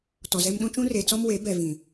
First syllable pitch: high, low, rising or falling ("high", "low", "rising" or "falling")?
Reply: low